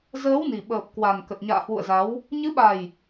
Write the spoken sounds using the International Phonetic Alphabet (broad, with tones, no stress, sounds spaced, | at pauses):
z əː˨˦ w n i˨˩ ɓ əː˨˩ p̚ k w a˨˩ n k ə˨˩ t̚ ɲ a̰ː˧˨ h w ṵ˧˨ ə̯ z a˨˦ w | ɲ ɨ˨˦ ɓ a˨˩ j